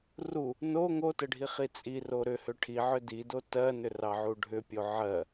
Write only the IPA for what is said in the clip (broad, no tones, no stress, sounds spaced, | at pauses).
r u | n o ŋ o t ɘ ɖʱ i χ i t͡sʼ i r o ɾ ʏ h ʏ ʈʰ i ʕ ʏ d i d o t ɜ n ʏ r ɑ ʕ u ɖʱ ʏ pʲ o ʕ ɜ